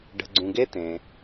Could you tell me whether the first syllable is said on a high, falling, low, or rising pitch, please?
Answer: low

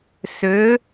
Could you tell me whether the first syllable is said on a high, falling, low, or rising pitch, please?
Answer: rising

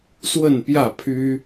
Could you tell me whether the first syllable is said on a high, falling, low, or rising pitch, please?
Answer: falling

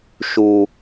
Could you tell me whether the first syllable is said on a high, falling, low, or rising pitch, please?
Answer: low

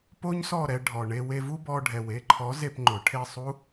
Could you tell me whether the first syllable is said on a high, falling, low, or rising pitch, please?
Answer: high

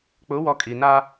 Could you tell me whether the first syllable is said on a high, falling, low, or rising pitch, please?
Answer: rising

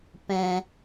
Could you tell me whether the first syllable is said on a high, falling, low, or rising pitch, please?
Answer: low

